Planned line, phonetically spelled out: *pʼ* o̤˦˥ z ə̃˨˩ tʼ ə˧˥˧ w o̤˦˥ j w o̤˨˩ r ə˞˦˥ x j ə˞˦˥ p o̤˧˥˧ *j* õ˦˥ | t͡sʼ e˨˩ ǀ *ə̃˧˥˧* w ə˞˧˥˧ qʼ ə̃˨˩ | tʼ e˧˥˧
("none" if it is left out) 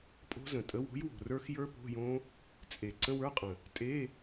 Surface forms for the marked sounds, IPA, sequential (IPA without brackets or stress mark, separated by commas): pʼ, j, ə̃˧˥˧